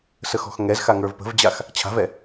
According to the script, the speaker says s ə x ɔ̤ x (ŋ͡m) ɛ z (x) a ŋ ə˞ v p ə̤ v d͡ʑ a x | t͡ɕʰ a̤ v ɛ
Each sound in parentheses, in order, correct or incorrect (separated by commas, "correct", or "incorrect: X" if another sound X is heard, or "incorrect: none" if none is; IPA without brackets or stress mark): incorrect: ŋ, correct